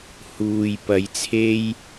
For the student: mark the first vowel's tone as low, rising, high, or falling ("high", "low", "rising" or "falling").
low